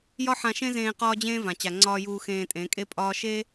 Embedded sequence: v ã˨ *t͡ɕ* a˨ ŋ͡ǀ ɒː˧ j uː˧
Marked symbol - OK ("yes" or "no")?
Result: yes